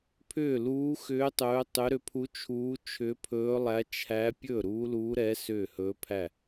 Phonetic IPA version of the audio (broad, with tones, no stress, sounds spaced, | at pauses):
pʰ ʏː˥˩ l uː˧˥ x ʏː˧˥ tˤ ɵː˧˥ tˤ ʏ˧˥ ɾ ʏ˧˥ pʰ u˧˥ t͡ʃʰ uː˧˥ t͡ʃʰ ʏ˧˥ pʰ ɵː˧˥ lˠ æ˧˥ t͡ʃʰ æ˧˥ pʲ ɵ˥˩ ɾ uː˧˥ l uː˧˥ ɾ ɛ˧˥ s ʏː˥˩ h ɵː˧˥ pʰ æ˥˩